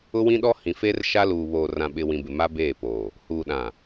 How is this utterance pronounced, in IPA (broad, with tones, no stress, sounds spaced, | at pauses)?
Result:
ʊ˦ w ĩ˦ ɗ ɔ˦ h ĩ˨ f eː˦ r ʃ a˦ l uː˨ β oː˨ r ã˨ ɓ ɪ˨ w ĩ˨ b ɪ˨ m a˦ b eː˦˨ p oː˨ | h uː˨ ɗ ã˨